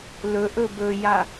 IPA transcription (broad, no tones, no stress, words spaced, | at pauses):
lɵʔɵ bɵja